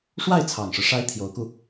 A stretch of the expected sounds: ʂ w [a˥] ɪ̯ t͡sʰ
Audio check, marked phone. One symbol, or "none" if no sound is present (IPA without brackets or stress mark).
a˥˩